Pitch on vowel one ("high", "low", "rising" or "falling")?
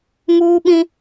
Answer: high